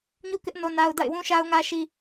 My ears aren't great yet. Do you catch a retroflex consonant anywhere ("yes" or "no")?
no